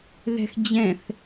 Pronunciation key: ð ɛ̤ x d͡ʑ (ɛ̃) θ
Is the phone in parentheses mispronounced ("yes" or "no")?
no